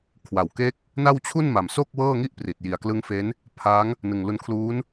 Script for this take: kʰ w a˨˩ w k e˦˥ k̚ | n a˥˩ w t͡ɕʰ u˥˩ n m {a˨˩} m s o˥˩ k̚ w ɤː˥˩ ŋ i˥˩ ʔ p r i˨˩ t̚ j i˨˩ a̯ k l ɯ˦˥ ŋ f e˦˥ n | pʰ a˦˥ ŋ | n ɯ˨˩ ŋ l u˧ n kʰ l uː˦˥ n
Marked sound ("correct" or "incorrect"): correct